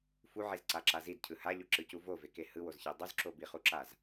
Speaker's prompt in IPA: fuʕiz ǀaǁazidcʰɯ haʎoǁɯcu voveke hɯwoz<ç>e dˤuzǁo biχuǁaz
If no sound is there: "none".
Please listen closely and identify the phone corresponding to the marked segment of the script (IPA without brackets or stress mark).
ç